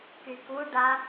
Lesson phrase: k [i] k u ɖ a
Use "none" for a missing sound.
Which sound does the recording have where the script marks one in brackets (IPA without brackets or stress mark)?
y